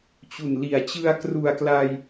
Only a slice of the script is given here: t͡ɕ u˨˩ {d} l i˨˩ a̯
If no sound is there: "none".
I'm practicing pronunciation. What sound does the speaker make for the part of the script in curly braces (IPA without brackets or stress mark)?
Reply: n